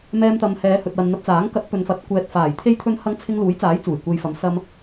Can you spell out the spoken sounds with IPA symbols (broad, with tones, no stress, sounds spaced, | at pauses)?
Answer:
m ɛː˧ m t̪ ɐ˨ m h ɛː˨˧ h ɵ˨ t̚ w ɐ˨ n n̪ ɐ˧ p̚ t͡s aː˨˥ ŋ k ɐ˨˥ t̚ p ɵ˨ n f ɐ˨˥ t̚ kʷ ɛː˨ t̚ f aː˨˩ j t̪ʰ e˨˧ j t̪ʰ ɵ˨ n h ɐ˨˥ ŋ t͡sʰ ɪ˧ ŋ l uː˨˥ j t͡s aː˨˥ j t͡s uː˨˩ j kʷ e˨ j f ɐ˨˥ m s ɐ˧ m